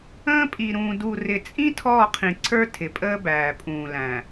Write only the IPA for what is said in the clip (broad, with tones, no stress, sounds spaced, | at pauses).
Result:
ə̃ː˦ pʼ i˨ ɾ ũː˨ d u˨ r ɪ˨ t͡sʼ ĩ˦ tʰ ɔː˦˨ qʰ ĩ˨ ǀʰ ə˞˦ tʰ ɪ˨ pʼ əː˦ b æː˨ pʼ ũː˨ l æ̃˨